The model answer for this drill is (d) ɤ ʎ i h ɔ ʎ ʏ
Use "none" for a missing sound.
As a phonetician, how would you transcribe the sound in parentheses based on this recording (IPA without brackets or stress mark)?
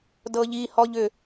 d